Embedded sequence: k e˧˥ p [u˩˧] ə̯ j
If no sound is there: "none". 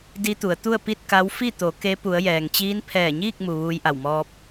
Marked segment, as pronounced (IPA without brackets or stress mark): u˩˧